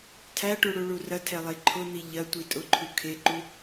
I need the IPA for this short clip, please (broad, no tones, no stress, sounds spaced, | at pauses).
tʰ æ ʈ u ɽ u ɭ u r ɐ tʰ ɛ lˠ e ǃʰ ʊ n̪ i ʎ ɐ tʷ i tʼ ʊ ǃʰ u kʰ e ǃ u